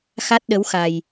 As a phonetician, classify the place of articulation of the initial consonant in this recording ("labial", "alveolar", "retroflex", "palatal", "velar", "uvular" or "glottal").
velar